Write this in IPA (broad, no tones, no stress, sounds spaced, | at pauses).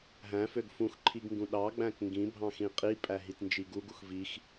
ɦ æ̃ f ø ɡ f ũ x ǃʰ i ɡ ŋ ɡ ũ ɗ ɑ ɡ͡b æ̃ k ŋ ɡ ĩ bʱ ɑ̃ x ĩ qʼ i pʼ æ ɦ i t n d͡ʒ i ɡ u ɡ u x v i x